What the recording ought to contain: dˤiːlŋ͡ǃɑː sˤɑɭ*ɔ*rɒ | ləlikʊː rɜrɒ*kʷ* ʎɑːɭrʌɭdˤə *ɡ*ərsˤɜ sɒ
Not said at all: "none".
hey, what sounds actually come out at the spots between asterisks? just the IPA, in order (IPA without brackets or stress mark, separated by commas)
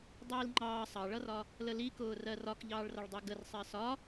ʌ, k, ɡ